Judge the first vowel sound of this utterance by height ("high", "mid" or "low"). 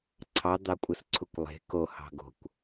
low